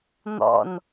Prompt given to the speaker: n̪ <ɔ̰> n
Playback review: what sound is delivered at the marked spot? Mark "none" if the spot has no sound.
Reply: ɔ̰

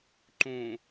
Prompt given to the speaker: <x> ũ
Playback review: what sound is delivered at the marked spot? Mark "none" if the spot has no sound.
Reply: ǃ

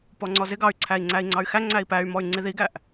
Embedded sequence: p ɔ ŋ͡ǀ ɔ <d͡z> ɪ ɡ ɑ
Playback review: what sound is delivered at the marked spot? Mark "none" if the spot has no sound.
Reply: z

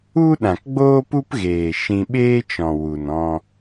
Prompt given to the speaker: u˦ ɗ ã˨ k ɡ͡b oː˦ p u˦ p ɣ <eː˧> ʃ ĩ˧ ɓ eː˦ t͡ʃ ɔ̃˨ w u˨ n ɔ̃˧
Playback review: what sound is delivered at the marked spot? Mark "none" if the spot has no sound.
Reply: eː˨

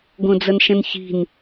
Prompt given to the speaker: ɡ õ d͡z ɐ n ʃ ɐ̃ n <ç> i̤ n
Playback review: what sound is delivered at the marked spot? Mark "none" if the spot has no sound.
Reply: ç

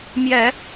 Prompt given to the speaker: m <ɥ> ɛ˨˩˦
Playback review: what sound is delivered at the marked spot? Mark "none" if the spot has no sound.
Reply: j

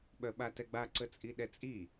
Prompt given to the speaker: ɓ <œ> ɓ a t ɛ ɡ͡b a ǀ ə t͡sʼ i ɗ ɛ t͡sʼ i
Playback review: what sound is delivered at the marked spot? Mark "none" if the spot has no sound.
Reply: œ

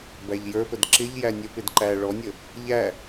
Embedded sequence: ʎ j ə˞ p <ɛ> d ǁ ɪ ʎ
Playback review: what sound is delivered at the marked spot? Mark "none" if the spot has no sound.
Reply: ə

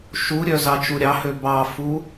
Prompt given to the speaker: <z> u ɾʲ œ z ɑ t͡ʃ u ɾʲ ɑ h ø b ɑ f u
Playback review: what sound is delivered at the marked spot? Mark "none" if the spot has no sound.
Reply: ʃ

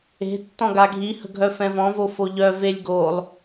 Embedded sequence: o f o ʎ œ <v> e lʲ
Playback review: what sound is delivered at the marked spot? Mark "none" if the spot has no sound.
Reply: v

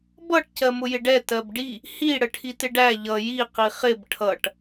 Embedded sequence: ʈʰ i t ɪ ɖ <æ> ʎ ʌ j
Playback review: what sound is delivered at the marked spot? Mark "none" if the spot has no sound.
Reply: æ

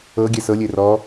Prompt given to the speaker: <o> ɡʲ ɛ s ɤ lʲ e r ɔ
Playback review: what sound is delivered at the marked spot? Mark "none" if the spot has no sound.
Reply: ɤ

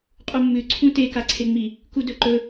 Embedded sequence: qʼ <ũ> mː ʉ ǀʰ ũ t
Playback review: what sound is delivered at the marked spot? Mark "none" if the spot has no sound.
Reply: u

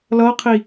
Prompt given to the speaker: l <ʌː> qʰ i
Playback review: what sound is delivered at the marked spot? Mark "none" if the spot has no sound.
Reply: ʌː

